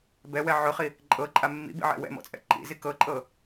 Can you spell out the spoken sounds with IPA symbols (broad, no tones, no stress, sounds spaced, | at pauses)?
b ɛ w ɛ ʕ ʊ χ i | ǃʼ ɤ ǃʼ a mː ḭ b ḭ ʕ ɛ̰ w ɛ̰ m ɔ̰ t͡sʼ ɛ̰ ǃ ḭ z i k ɤ ǃʼ ɤ